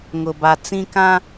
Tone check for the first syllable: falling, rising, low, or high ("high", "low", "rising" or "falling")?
low